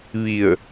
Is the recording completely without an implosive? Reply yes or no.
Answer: yes